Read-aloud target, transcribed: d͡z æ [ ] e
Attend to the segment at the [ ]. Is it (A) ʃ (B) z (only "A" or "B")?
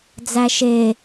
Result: A